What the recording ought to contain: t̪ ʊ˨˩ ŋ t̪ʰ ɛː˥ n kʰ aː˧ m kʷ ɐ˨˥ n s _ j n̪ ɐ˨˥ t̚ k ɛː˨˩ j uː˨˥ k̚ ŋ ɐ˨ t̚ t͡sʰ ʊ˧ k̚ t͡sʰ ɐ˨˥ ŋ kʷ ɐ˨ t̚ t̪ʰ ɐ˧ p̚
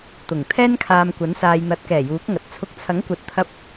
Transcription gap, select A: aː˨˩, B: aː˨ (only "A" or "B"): B